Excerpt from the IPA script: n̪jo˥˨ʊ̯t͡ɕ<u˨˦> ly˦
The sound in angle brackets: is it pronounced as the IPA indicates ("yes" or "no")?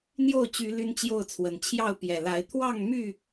no